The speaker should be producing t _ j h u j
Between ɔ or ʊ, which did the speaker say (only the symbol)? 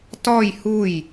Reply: ɔ